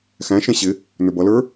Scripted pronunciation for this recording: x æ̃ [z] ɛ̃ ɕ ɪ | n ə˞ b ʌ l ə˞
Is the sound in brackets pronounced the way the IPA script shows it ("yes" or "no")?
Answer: no